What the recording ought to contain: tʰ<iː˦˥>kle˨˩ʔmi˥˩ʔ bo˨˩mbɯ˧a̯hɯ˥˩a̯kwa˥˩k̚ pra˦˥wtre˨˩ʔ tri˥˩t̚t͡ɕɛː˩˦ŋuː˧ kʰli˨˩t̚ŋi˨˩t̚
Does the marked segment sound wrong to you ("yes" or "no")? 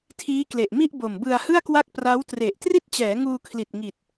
no